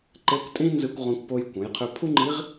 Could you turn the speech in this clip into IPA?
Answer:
ǃe˧˥kʷtʼĩ˥ nzɨ˧kʷʁõ˧kʷpo˧j kʷə̃˩˧jqʰø˧ pʰu˥ŋ͡ǃi˧˥ʁ

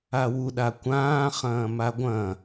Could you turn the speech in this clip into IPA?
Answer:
awu ɗakʷãː χɐ̃ːmaɡʷɐ̃

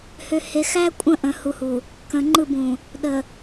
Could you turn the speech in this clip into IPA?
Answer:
hø˨he˨ xæ˦kʷʼə̃˦˨ ʔə̃˨ hu˨hu˨ | kə̃˨ ŋ͡ǃɯ˦˨bũ˨ | ɗə˨

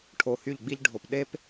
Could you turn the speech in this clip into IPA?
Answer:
ʈʰo˨ hy˦˨ʎɡ͡bi˦ʎ ɖʱo˨pɗe˦p

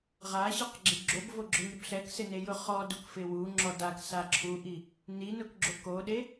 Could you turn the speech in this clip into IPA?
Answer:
ʁaɕiqɡ͡ǁɪ ɡ͡ǁobvoɡ͡ǁʊɲɪb ɬɛksɪnejʊ χɔdukfɪ wuŋ͡ǁɔ daksa ǁʰuʔi | ninʊkɡ͡ǁo koɗe

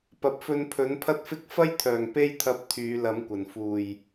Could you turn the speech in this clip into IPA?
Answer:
pɐ˨p̚fɵ˧n pʰɵ˨˥npʰɐ˥t̚fɪ˥k̚ fɐ˥jt̪ʰœː˨˩ŋ pe˥jt̪ʰɐ˧p̚ t̪ʰyː˨˧lɐ˨˥mkʷɐ˨˩n fuː˨˩j

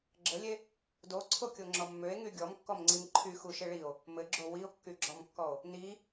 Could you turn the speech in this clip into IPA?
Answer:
ɡ͡ǁəlʲe | doǀʰokʲoŋ͡ǁɔ mːøe̯ŋy ɡʲɔmkːɔmŋ͡ǀim ǃʰyxuʃɘ ɭio̯ | mɘɡ͡ǁo wio̯kːyɡ͡ǁɔmkːɔo̯ | ni

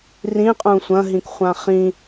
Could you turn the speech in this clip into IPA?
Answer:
rĩqʼũ sʷɐ̃ɦĩkχʷã χĩ

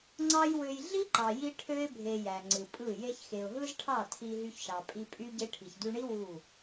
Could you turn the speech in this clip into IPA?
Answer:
ŋ͡ǀɑ˦jwø˧j ɮi˦ǃɑ˨ji˧ ʈʰø˦ɪ̯ bʱe˧jæ˨ŋ͡ǀɯ˨pʼɯ˦˨ je˧çxe˨ʊ̯ɦɯ˦zʈʰɑ˦˨ tʰi˧ɦy˧çʃɑ˨ pʼi˧pʼy˦ ɟe˧ʈʰi˨çdy˧ɳi˦ wu˦˨

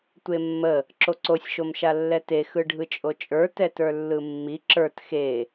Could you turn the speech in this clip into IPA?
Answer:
tʷemːə | ǁoǀosʲ ʃomʃalːɛte xɯɖʱɯt͡ʃʼot͡ʃʼə˞ tɛtə˞lːɯmːi ǁə˞t xe

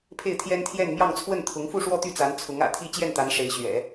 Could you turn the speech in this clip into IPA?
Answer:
pʰe˥˩ɪ̯t̪ʰjɛ˥nt̪ʰjɛ˥˧n mjɑ˥˧ŋt͡sʰwə˥˩n t̪ʰʊ˧˥ŋfu˥˧ʂwɔ˥˧ t̪y˥˩t͡sa˧˥nt͡sʰʊ˧˥ŋ ä̰˨˩t̪ʰi˥˧ t͡ɕjɛ˥˩nt̪a˧˥n ʂe˧˥ɪ̯ ɕɥɛ̰˨˩˦

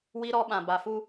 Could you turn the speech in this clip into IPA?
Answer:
wi˦ɾɔ˦ ɓã˨ba˨fu˦

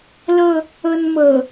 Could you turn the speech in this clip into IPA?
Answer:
lə˥˧ | ə˧nmə˨˩

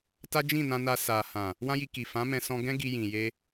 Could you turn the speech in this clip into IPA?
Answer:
ta˦d͡ʒĩ˦˨nã˧na˧ sa˨ hã˨ | wã˦ji˧ki˨ fã˨˦mɛ̃˧sɔ̃˧ ɡɛ̃˦ɡi˧jĩ˨ je˧

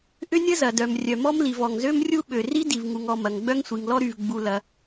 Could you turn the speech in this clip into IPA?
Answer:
ʔʏ˦nʲə˦zɐ˩dœ˩m rʲœ˩mɔ˦mli˩v ɔ˩ŋzø˦mrʲu˦ɓø˩ ri˦di˩vŋu˩ŋɔ˩ mɐ˩ŋɡ͡bœ˦ŋsʷi˩ŋlɔ˦ ɾy˩vɡ͡bu˩ lɐ˩

